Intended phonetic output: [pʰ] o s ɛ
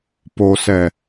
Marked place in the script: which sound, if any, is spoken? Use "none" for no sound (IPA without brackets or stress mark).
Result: p